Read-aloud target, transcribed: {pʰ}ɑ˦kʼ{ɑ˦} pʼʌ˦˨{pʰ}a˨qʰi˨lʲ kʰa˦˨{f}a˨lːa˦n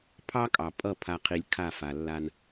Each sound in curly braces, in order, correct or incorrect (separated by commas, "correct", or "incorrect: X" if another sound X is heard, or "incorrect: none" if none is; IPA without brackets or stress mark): correct, incorrect: ɑ˨, correct, correct